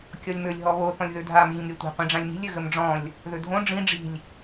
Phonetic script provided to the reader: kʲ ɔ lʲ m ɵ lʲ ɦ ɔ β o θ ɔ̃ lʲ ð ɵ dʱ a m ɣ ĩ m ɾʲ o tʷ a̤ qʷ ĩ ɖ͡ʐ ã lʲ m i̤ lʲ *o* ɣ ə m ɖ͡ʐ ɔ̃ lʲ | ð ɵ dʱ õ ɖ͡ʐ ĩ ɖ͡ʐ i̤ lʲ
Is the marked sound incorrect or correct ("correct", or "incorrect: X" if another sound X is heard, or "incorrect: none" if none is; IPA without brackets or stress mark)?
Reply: incorrect: ɵ